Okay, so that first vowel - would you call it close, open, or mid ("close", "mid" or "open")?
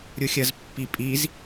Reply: close